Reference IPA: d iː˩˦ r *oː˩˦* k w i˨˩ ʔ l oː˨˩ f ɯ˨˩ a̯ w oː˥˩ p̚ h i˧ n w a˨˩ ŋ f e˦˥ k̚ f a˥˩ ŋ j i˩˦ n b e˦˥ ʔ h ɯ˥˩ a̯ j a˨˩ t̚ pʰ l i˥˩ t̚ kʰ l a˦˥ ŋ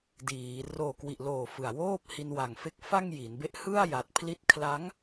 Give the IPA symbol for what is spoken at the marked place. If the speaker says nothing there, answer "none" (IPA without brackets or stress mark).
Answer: oː˨˩